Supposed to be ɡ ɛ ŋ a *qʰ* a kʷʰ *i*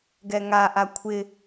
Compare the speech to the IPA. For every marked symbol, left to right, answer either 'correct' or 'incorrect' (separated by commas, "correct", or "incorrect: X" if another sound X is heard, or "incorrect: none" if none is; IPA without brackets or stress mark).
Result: incorrect: ʔ, incorrect: ɪ